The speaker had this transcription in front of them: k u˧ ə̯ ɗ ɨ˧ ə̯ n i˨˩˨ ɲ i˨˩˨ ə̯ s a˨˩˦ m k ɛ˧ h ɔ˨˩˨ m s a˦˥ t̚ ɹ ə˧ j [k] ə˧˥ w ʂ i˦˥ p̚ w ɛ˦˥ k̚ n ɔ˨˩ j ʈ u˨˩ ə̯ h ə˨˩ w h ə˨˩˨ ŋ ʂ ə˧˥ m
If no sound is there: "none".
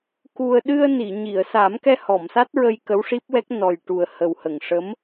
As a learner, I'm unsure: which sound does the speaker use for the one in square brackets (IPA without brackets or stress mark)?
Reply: k